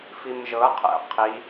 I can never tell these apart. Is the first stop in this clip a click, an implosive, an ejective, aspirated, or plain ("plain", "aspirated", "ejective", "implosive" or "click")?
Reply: aspirated